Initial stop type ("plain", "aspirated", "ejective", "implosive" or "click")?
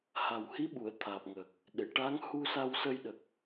implosive